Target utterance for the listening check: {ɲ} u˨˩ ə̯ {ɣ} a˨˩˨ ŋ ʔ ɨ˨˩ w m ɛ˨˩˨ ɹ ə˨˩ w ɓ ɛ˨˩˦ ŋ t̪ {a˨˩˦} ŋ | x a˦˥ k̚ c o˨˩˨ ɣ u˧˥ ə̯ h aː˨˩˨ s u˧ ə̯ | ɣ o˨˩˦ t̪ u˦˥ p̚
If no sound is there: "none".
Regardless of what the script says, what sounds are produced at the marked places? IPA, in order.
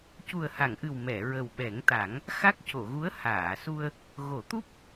c, h, a˨˩˦

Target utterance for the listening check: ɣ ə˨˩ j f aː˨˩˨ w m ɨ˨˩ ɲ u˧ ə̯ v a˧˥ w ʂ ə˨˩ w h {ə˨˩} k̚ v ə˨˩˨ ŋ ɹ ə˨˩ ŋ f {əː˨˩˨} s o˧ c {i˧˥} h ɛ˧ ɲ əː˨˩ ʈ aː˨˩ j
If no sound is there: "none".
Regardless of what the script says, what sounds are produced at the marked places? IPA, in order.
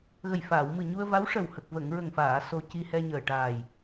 ə˨˩, aː˨˩˨, i˧

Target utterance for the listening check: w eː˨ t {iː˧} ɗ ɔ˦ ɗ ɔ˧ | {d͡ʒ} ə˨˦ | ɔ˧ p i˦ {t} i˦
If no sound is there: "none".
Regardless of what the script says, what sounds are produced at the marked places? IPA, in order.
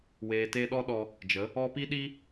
eː˧, d͡ʒ, ɗ

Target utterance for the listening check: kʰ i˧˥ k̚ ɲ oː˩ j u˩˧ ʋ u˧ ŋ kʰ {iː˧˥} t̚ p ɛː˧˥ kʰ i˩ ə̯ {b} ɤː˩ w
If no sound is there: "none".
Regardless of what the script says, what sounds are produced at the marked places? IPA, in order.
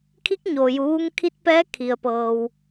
i˧˥, p

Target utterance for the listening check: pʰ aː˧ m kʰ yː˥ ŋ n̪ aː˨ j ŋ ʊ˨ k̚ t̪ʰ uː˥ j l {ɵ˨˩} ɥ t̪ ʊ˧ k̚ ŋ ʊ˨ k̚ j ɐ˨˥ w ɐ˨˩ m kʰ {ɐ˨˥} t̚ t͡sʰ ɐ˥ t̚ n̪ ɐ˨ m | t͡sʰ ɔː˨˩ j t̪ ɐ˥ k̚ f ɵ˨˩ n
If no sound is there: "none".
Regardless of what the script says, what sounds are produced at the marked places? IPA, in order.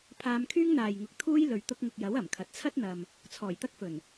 ɵ˨, ɐ˨

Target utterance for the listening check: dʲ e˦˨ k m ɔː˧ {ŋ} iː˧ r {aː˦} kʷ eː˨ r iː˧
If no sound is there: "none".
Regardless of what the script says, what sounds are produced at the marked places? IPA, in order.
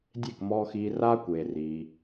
x, aː˦

